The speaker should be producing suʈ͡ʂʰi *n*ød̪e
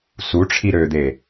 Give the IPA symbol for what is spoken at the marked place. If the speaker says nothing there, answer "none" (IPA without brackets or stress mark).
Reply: ɾ